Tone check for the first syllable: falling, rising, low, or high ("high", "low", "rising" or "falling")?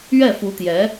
falling